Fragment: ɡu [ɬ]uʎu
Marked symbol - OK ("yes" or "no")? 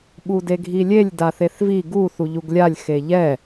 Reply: no